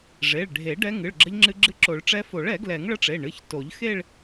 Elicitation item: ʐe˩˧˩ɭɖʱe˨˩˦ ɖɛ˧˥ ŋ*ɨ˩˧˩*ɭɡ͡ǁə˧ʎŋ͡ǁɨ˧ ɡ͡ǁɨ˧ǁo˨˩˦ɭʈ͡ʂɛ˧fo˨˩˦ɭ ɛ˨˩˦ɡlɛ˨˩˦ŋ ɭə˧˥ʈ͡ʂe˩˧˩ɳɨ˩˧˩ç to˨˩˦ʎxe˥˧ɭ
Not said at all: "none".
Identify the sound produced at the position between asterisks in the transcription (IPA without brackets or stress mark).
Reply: ɨ˩˧˩